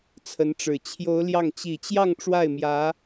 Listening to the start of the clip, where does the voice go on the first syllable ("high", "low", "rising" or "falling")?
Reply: rising